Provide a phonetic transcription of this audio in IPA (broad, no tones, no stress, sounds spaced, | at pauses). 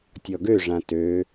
tʲ ɔ ɡ ø ʐ ã t ø